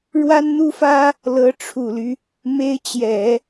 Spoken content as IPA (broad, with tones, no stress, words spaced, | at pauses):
ɻwa˥nn̪u˥fä˥ | lɤ˧˥ ʈ͡ʂʰu˨˩ly˦ | me˥ɪ̯ t͡ɕjɛ˨˩˦